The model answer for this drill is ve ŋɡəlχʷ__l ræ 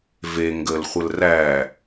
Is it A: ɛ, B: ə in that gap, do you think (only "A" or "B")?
B